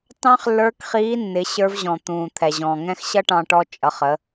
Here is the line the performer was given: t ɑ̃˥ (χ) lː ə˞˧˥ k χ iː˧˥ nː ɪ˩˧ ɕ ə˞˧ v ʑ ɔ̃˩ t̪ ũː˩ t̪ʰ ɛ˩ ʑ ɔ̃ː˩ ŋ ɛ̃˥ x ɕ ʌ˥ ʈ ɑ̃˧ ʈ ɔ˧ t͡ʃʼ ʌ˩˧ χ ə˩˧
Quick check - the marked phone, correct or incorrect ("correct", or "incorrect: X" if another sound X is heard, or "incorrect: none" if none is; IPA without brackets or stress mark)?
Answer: correct